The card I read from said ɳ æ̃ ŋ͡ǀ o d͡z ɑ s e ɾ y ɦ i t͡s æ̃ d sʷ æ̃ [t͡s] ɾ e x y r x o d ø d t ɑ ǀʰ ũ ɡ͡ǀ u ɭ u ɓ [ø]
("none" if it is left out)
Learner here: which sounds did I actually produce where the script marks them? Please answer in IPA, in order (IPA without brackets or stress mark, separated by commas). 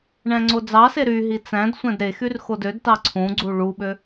d, ø